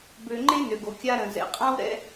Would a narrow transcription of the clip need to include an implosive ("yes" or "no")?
no